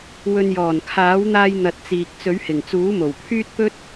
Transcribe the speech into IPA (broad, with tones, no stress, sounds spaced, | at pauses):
w ɵ˨ n j ɔː˨˩ n kʰ aː˨˥ w n̪ aː˧ j n̪ ɐ˧ t̚ t͡s iː˨ k̚ t͡s ɵ˨˥ ɥ h ɪ˨˩ ŋ t͡s uː˨˥ m o˨˩ w pʰ yː˥ t̚ p ɵ˥ t̚